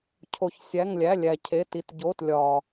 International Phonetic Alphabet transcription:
cʰ o˧ ç sʲ æ˧˥˧ ŋ lʲ æ˧˥˧ lʲ æ˧ cʰ e˧˥˧ t i˧ t ɟ o˧˥˧ t lʲ ɒ˧

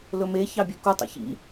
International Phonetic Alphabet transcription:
l ɵ m e ç ɑ bʲ ø k u tˤ ḭ ç ḭ

